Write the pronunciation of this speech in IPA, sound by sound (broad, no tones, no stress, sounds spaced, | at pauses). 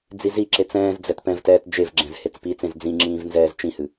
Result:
d͡z i z i ǁ e t͡s ɛ̃ː z d͡z ɛ t p ɛ̃ v t ɛː t d͡ʒ e v ɡ͡ǁ ɛ̃ z h e t͡s p i t͡s ẽ z d͡z ĩ ŋ͡ǁ ĩː v n z ɛː z t͡ʃ ĩ h ɨ